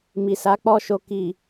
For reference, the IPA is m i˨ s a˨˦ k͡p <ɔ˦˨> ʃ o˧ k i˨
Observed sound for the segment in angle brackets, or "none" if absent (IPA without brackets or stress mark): ɔ˦˨